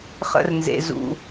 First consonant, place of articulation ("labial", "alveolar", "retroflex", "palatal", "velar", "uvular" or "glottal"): uvular